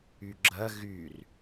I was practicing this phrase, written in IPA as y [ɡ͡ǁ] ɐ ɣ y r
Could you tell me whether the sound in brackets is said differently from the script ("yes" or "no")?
no